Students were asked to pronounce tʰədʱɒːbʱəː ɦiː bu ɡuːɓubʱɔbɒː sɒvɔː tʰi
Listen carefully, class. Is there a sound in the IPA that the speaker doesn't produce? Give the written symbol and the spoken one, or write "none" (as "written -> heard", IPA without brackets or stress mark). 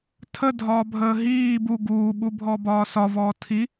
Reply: none